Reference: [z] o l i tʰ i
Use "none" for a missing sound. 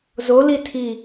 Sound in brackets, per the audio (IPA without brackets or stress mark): z